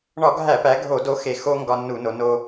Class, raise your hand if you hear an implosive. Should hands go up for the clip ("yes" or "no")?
no